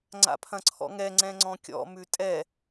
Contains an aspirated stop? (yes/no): yes